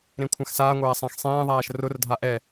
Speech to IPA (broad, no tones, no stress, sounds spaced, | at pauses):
ɾ ẽ kʷʰ ã x s aː ŋʷ æː sˤ æ̃ x sˤ ẽː ðˤ æː ʃ r ʊ r dʱ a ʔ ɛ